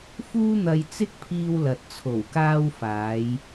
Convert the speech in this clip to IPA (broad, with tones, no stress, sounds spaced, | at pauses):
f uː˥ n̪ ɐ˧ j t͡s ɪ˥ k̚ pʰ iː˧ w l ɐ˨ t̚ t͡sʰ o˨˩ w k aː˧ w f aː˨˧ j